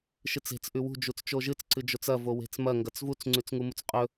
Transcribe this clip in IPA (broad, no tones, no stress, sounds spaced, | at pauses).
ʃ ɨ t͡s e̤ t͡s ʔ ʉ w ṳ d͡ʒ u t͡s t͡ʃ o ʒ ɨ t͡s ǀ ɨ d͡ʒ o t͡s ɐ v o w e̤ t͡s m ɐ ŋ ɡ ɐ t͡s v u t͡s ŋ͡ǀ ʉ t͡s ŋ u m u t͡s qʼ ɵ